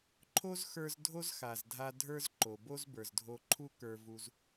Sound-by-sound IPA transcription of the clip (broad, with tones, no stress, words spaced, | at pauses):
ǃʰo˥zxə˞˧z dʱo˥zxa˩zdʱa˧ dʱə˞˥zǃo˩ bo˥zbə˞˩zdʱo˧ ǃʰu˥kə˞˧vu˧z